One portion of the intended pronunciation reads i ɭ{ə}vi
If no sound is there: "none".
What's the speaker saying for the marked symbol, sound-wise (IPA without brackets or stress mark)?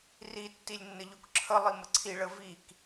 ə